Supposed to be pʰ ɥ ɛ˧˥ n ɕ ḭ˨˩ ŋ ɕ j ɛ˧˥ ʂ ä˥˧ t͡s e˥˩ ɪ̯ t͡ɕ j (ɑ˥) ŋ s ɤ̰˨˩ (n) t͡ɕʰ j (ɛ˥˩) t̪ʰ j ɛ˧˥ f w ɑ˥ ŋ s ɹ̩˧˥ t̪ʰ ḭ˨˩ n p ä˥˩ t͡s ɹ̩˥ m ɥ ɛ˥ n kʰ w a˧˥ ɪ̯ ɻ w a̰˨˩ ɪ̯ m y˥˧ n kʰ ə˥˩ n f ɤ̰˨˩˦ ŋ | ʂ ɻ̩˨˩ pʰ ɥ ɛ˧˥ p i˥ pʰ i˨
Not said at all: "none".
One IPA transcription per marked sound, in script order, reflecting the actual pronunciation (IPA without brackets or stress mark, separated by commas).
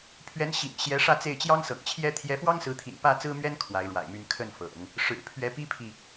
ɑ˥, ŋ, ɛ˥